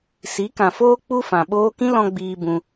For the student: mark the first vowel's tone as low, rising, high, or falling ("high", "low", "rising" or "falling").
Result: rising